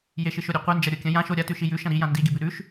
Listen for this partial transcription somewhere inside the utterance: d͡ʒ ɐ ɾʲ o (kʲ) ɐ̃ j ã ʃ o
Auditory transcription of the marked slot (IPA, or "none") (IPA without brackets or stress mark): kʲ